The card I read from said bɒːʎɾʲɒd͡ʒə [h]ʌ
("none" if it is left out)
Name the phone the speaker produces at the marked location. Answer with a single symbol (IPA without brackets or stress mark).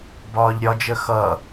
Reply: x